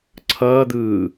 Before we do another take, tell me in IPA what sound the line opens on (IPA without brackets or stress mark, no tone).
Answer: ǀʰ